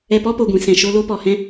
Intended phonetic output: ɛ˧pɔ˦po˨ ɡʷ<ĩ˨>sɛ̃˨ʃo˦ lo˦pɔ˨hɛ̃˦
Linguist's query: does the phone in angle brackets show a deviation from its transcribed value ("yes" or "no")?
no